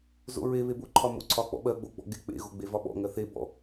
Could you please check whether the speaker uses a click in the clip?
yes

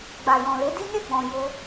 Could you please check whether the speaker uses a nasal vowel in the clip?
yes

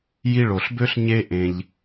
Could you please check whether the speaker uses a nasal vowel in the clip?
yes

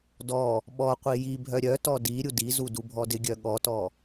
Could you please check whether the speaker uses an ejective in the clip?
no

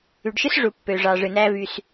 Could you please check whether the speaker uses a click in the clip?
no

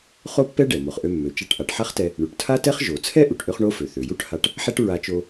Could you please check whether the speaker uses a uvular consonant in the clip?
yes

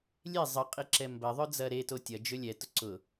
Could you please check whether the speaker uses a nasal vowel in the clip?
no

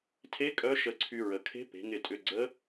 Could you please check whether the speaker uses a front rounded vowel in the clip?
yes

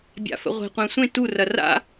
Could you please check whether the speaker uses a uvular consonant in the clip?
yes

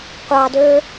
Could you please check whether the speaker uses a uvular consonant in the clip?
yes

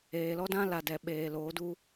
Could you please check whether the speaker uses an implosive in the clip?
yes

